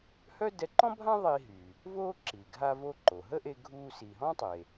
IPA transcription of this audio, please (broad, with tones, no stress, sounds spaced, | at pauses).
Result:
h œ˥ d ɛ˧ ǃ ɔ̃˥ bʱ ã˥ ðˤ i˧ ɦ y˩ | v oː˥ ǁ i˩ ɡʱ a˧ v o˧ ǃ o˩ ɦ ə˥ ʔ e˧ ɡʱ uː˧ s i˩ ɦ ɔ̃˥ tˤ e˩